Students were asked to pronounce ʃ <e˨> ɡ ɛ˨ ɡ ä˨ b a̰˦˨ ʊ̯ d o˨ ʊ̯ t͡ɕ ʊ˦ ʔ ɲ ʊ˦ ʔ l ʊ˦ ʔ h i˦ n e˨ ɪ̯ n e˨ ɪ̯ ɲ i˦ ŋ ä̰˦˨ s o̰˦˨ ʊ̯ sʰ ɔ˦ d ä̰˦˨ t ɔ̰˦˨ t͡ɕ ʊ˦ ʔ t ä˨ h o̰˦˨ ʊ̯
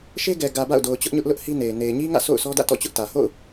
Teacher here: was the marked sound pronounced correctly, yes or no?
no